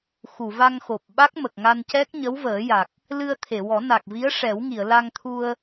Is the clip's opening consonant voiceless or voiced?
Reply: voiceless